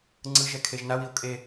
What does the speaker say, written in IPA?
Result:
ŋ͡ǀ ɯ ʒ ɛ kʰ e ʒ n a w i o̯ kʼ e

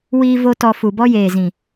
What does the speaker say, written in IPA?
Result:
w iː˦ v o˦ t ɔ˧ f u˨ b ɔ˦ j eː˨ z ĩ˨

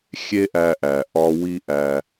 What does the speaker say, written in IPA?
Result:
xʲ e˥ ʔ æ˧ ʔ æ˩ ʔ ɒ˧ w i˧ ʔ æ˩

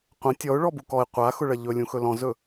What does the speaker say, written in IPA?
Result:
qʷ ə̃ tʲ ɔ ʊ̯ ɭ ɔ b u k ɔ ɪ̯ qʷ a x ʊ ɭ ɐ ʎ ɵ lʲ ũ x ɵ l ɔ̃ z ɵ

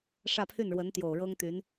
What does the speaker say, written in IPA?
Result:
ʂ ä˥˧ pʰ y˥˩ n ɻ w ə˧˥ n t̪ j o˨˩ ʊ̯ ɻ ɤ˥ ŋ t̪ y˧˥ n

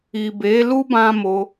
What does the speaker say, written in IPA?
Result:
i˨ b e˨˦ l u˦ b ã˦ m o˧

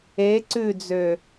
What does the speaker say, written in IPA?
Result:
e ǀ ʉ d͡z ø

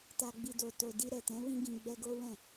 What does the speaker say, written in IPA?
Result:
t a˨ ɡ͡b i˨ d o˨ t o˨ d i˧ ɾ ɛ˨ t ɛ̃˨˦ w ĩ˧ ɡ ĩ˨ ɡ͡b ɛ˧ ɡ o˦ w ɛ̃˦˨

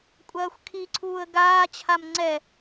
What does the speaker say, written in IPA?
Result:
kʷʼ ɐː xʷ kʰ i ǀʰ uː ə̯ ɡ aː t͡ɕʰ a m ŋ͡ǀ ɛ

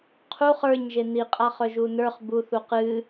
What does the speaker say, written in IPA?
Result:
qʰ u χ ə˞ ɲ ʒ e n i qʼ a χ œ ʒ u n ə˞ χ b u θ u q ɨ

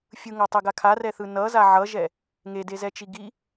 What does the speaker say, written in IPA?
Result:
fʲ ɯ ŋ a tˤ e ɡ a kʰ a r ɛ θ ɯ n ʌ z a ʕ ʌ ʒ ɛ | ŋ e d e z ɛ t͡ʃ i ɡ i

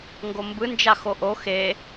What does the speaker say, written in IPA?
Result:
ŋ ɡ o m b ɯ n d͡ʒ a x o ʔ o x e

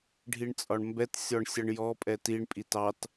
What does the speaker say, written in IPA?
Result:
ɖʱ i ɳ t͡sʼ ɒ ɳ m b ɛ t sʲ ɔ ɳ sʲ ʌ ɳ j ɔ pʼ ɛ t i ɳ pʼ i t ɑ t

